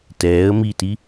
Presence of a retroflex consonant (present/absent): absent